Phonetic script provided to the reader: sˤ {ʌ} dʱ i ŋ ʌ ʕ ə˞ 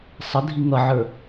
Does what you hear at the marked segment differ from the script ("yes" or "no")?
yes